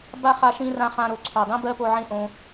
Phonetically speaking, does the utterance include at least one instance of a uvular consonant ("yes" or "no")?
yes